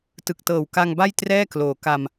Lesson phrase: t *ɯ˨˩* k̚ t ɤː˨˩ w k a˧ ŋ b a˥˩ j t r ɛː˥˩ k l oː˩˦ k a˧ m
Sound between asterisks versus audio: correct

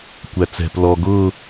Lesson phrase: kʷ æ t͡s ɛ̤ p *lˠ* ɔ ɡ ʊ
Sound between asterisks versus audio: incorrect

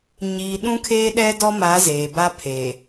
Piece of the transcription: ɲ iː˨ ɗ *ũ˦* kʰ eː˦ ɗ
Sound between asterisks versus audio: correct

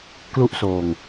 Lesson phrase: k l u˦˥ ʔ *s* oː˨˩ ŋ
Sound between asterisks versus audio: correct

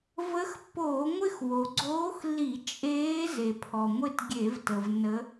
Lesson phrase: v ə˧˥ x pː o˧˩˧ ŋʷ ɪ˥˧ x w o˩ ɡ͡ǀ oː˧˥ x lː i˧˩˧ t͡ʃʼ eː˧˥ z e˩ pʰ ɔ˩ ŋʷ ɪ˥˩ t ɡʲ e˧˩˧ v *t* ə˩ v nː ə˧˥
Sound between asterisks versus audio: correct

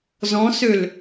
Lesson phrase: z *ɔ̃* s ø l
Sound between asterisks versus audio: correct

